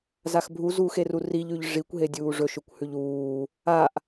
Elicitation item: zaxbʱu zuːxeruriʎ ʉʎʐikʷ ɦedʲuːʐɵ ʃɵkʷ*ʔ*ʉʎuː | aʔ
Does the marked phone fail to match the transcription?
yes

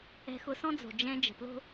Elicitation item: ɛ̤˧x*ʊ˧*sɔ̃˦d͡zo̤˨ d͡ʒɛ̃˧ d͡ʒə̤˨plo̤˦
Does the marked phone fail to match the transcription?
no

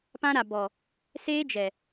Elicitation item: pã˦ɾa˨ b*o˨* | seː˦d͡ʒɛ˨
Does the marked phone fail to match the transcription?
yes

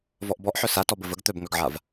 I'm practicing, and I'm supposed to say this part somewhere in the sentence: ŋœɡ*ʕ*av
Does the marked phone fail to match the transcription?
no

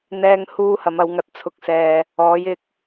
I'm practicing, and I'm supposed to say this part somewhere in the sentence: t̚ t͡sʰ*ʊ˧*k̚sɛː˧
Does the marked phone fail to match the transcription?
no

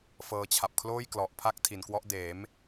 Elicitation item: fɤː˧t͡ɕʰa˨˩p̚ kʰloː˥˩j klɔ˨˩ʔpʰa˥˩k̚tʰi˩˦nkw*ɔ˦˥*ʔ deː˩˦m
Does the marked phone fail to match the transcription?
no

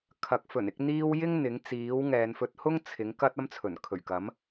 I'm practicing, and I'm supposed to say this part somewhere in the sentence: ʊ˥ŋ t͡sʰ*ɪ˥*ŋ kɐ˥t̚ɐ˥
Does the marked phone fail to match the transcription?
yes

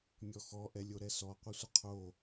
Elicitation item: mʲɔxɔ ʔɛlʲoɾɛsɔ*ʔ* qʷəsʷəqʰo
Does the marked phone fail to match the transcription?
yes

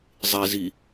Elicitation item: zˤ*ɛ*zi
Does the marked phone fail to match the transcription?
yes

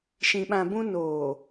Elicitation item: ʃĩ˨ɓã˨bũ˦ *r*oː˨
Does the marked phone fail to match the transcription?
yes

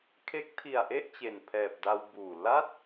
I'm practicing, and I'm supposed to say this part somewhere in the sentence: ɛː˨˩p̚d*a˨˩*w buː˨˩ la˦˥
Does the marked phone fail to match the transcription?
yes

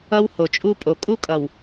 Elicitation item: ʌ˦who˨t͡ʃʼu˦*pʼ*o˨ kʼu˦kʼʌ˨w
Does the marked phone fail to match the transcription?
no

